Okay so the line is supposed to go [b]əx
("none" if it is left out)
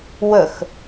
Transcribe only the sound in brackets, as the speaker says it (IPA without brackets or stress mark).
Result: w